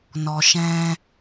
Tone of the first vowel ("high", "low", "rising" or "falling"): low